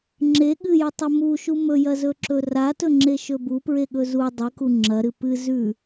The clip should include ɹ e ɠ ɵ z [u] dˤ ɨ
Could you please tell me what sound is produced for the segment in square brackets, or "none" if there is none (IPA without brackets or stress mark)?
u